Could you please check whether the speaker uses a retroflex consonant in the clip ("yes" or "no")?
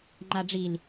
yes